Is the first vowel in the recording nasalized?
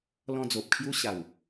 yes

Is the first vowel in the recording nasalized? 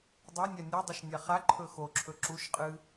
no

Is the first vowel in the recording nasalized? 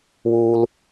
no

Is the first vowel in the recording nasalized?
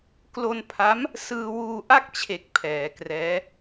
no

